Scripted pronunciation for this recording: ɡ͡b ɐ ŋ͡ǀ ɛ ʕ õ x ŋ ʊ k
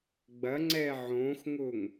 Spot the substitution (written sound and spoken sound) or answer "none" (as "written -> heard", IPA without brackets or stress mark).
k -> ŋ